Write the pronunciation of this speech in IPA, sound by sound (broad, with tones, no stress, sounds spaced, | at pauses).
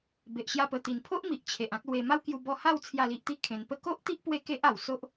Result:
b e˨ ʔ ɕ j a˧ p ə˨˩ t̪ i˨˩ n pʰ o˦ ʔ m i˨ ʔ t͡ɕʰ e˨ ʔ ã˦ k̚ l w e˧ m a˦ w k j u˧ b ɔ˧ h a˥˧ w t͡sʰ j a˥˧ l i˦ ʔ t̪ i˦ kʰ ẽ˨˩ n p ə˥˧ k o˦ ʔ t̪ i˦ ʔ p w e˦ k e˦ ʔ a˨˩ w s o˦ ʔ